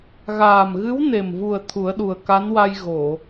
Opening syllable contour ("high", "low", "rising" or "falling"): low